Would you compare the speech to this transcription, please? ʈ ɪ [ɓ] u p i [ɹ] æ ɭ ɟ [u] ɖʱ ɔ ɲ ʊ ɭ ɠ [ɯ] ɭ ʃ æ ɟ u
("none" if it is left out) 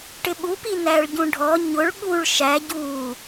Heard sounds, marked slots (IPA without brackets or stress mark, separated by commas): ɓ, n, ũ, u